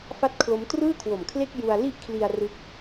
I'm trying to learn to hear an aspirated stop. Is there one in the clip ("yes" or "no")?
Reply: yes